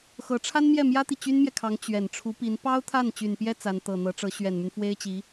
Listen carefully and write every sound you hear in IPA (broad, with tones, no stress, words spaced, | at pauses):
xɤ˧˥ʈ͡ʂʰa˥nmjɛ˥˩ mjä˥t̪i˨ t͡ɕy˥nmjɛ˨kʰɑ˧˥ŋ t͡ɕɥɛ˨˩n ʈ͡ʂʰu˧˥pi˧˥n pɑ˥ʊ̯t̪ʰa˥˩n t͡ɕy˨˩npjɛ˥ t͡sa˧˥nt̪ɤ˨˩n̪ɤ˧˥ʈ͡ʂɤ˧˥ ɕɥɛ˨˩nmy˦nfwe˥ɪ̯t͡ɕi˧˥